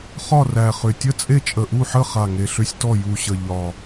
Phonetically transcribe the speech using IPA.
χ ɒ˥˨ r æ˨˩ χ ʏ˨˩ tʲ ə˥˨ t͡sʼ e˥˨ t͡ʃʼ ə˨˩ ʔ u˥˨ ħ ə˥˨ χ a˨˩ ŋ e˨˩ ɬ ʏ˥˨ sʲ t ɔ˥˨ j u˨˩ ɕ ə˨˩ ʎ ɒ˨˩

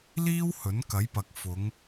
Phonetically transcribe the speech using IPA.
l iː˥ w h ɵ˨˥ n k ɐ˨˥ j p ɐ˨ k̚ f ʊ˨˧ ŋ

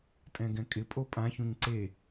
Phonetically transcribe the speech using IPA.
tʼ ɛ̃ ɡ ɛ̃ kʼ ɪ pʼ o pʼ ã ç ũ ɲ ǀ e

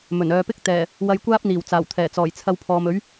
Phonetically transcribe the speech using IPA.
m ɵ˨˩ n œː˨ p ɪ˥ k̚ t̪ ɛː˨˩ | w ɐ˧ j kʷ aː˥ p̚ n̪ iː˨˩ w t͡s aː˨˩ w t̪ʰ ɛː˨˩ t͡s ɔː˨˩ j t͡sʰ ɐ˧ w pʰ ɔː˨ m ɵ˨˥ ɥ

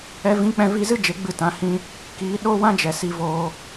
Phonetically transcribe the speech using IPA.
ɛ˧ v ĩ˨˦ k͡p ɛ̃˧ v i˧ z ɨ˦ d͡ʒ e˨˦ ɡ͡b ɨ˦˨ t ã˧ h ĩ˦ | k iː˨˦ ɗ o˦ w ã˦ d͡ʒ ɛ˨ s i˧ v oː˧

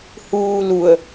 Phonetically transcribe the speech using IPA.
h uː l u ə̯

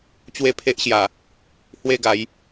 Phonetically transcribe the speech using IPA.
t͡ɕ w e˥˧ pʰ e˦ ʔ ɕ j a˨˩ | h w e˥˧ ɡ a˨˦ j

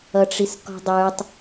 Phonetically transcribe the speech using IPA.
ʌ ʈ͡ʂ i s k ɔ̤ dˤ ə˞ tˤ

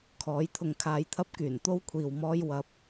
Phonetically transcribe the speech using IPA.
kʰ ɔː˨˥ j t̪ʰ ʊ˧ ŋ kʰ aː˧ j t̪ʰ ɐ˥ p̚ k yː˨˩ n t̪ o˥ w kʷʰ iː˨ w m ɔː˥ j w ɐ˧ p̚

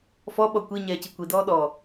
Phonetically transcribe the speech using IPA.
f ɔ ɓ ɔ kʷ i ɲ ɛː c i kʷ i d ɔː ɗ ɔ

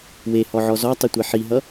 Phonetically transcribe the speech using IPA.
w e h ɔ ʕ ɔ z ɔ tˤ i tʷ e ħ i ɦ ʌ

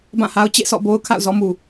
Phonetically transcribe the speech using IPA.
b ã˦˨ h a˦ ʊ̯ t͡ɕ ḛ˦˨ s ɔ̰˦˨ b o˦ ʊ̯ kʰ a̰˦˨ ʊ̯ z ɔ˦ m u˨

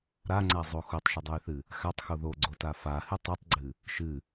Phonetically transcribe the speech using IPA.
ɾ a ŋ͡ǀ a zˤ o x o tˤ ʃ ɨ dˤ o j θ ɨ | x a tˤ x o ð o ɡ͡ǀ o t a f a h ɨ tˤ ɨ tˤ ɡ͡ǀ ɨ | ʃ ɨ

